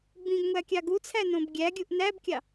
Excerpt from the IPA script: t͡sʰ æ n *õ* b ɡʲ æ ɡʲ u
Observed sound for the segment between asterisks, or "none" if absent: õ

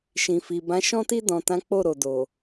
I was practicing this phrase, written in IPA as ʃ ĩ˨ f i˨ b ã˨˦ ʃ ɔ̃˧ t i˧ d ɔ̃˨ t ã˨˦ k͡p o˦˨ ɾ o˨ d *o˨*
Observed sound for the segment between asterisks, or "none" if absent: o˨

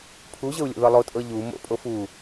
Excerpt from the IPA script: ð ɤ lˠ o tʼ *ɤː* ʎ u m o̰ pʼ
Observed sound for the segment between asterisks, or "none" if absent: ɤ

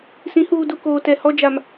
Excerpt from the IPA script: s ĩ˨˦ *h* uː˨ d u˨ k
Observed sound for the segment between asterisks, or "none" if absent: h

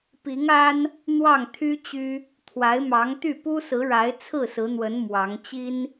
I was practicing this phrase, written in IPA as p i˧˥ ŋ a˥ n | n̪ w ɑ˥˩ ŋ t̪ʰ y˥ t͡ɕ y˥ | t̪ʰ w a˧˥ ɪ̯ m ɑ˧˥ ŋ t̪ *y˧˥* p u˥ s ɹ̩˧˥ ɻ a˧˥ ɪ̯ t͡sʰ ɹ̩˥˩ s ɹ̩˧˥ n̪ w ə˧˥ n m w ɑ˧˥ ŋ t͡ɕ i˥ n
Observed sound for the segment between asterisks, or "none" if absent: y˥˩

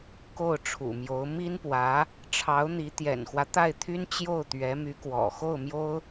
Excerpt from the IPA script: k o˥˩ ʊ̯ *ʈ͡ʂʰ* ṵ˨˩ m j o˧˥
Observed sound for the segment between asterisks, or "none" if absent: ʈ͡ʂʰ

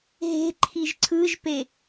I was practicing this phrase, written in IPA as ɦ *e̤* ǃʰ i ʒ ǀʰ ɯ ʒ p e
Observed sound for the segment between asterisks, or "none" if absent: e̤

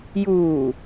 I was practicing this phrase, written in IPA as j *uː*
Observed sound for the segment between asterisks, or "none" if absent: uː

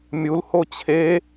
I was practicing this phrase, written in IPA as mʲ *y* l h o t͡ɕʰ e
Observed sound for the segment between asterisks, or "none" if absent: u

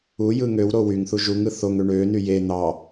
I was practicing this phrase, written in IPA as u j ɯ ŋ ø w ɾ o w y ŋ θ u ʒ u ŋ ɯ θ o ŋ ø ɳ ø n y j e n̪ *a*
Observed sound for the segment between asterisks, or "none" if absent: ɑ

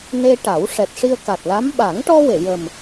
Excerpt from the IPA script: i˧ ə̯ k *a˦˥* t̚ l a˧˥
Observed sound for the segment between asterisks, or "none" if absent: a˨˩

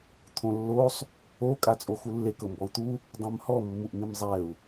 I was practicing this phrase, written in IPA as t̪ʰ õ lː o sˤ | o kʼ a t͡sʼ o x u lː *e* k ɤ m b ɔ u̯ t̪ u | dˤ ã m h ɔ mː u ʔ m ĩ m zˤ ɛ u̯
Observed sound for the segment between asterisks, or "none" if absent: e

